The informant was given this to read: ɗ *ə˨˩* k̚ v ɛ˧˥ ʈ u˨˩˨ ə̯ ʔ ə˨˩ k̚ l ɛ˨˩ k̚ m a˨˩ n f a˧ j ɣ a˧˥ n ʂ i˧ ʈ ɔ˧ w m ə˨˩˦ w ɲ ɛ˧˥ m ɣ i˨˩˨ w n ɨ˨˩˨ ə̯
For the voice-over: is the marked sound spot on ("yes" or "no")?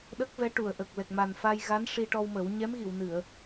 no